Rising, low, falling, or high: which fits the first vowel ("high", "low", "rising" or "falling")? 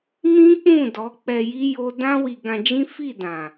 high